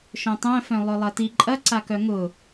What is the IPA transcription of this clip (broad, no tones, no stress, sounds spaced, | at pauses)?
ʃ œ̃ tˤ œ̃ f œ̃ lˠ œ lˠ ɐ t i ǃʼ ɐ ǀ a k œ ŋ ʊ